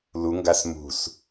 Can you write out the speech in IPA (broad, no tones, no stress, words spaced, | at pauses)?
luŋɡas mṳs